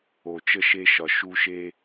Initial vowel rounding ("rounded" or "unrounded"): rounded